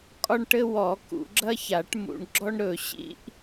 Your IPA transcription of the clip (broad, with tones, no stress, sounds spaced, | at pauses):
kʼ ɒ˥ ɳ ʈ ɘ˥ w ɔ˨˩˦ k ṵ˨˩˦ ɡ͡ǁ ɐ˥ ç a˨˩˦ ʈ m ṵ˨˩˦ ɳ ɡ͡ǁ ɔ˥ ɳ ɾ ɵ˨˩˦ ɕ ḭ˥ ʔ